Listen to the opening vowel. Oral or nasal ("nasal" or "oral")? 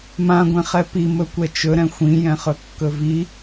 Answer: nasal